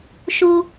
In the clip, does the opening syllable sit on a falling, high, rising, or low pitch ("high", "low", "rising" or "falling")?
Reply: high